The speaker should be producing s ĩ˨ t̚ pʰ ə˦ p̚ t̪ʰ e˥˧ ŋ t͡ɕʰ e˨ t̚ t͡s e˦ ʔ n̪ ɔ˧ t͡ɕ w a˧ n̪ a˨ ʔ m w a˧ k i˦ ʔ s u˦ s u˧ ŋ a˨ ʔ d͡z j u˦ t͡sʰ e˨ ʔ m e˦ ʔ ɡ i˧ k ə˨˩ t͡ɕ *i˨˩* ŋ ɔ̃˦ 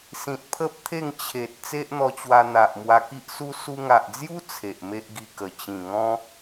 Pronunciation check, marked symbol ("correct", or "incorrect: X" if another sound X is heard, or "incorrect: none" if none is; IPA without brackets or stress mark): incorrect: ĩ˨˩